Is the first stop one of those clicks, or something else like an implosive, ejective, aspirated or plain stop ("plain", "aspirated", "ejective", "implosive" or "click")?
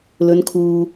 aspirated